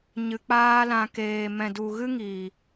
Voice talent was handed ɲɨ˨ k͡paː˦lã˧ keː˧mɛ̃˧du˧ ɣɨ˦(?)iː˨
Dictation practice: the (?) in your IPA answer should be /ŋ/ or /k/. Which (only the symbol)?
ŋ